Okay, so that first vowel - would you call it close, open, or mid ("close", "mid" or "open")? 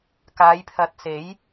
open